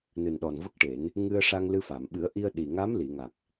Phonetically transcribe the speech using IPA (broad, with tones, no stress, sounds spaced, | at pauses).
n ɨ˨˩ n ɗ ɔ˨˩ n v ə˦˥ k̚ ʈ e˨˩˦ n | ŋ ɨ˧ ə̯ ʂ a˧ ŋ l ɨ˧ f a˨˩˨ m ɓ ɨ˨˩˦ ə̯ ʔ i˧ ə̯ ɗ i˨˩ ŋ a˧˥ m l i˨˩˨ ŋ a˨˩ k̚